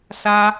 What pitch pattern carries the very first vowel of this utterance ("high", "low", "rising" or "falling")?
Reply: high